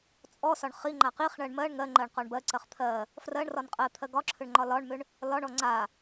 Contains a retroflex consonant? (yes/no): yes